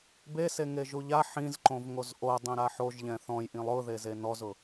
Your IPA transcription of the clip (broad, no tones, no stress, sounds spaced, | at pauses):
b e s e ŋ e ʒ u ʎ a ħ ĩ z ǃ õ v ŋ o z ʔ o dˤ ĩ ɾ a ħ o ʒ ʎ ɛ̃ θ ɔ̃ j ʔ ĩ lˠ ʊ ð e z e n ɔ z ʊ